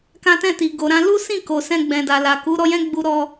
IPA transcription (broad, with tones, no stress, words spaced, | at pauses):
kã˦tɛ̃˦˨ti˨ ɡo˨ɾã˧ lu˦sĩ˦˨ ko˨sɛ̃˧ɡ͡bɛ̃˨da˨ la˨ku˨˦ɾɔ˧jɛ̃˦ ɡ͡bu˧ɾɔ˧